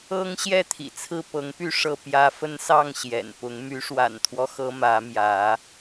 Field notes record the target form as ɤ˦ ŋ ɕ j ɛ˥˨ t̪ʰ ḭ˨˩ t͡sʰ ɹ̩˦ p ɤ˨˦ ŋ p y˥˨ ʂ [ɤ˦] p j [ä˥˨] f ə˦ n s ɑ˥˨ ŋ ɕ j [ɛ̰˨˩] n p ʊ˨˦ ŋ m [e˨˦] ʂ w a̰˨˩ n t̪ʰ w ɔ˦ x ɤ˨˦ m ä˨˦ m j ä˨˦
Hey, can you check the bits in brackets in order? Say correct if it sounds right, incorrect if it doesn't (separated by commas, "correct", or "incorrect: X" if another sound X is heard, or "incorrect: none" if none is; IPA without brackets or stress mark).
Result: incorrect: ɤ˥˨, incorrect: ä˦, correct, incorrect: y˨˦